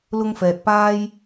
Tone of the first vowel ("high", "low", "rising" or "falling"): high